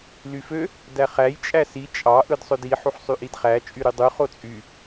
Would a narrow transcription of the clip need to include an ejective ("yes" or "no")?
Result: yes